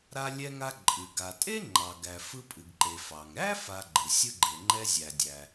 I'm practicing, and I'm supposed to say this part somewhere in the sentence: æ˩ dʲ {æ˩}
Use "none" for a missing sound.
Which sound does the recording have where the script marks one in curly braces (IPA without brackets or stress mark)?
æ˩